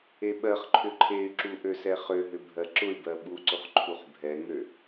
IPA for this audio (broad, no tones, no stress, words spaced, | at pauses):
eɓɜχǃʰʏ ǃʰey̯ǁu ʔøsɛχøɦʏ bʱɜǁʊy̯bɜ ɓuǀʊχ ǃʰuχbʱɛŋø